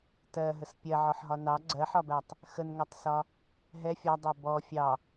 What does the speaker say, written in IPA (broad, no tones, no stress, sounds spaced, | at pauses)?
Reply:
t ɜ ɦ ə s pʲ ɜ ʕ ɔ ħ ɦ ɒ n ɑ ɡ͡ǀ ɜ ħ ɒ b æ tˤ | x ə n ŋ ɜ tˤ s ɒ | ɦ ɛ fʲ ɒ dˤ ɛ b ɔ fʲ ɑ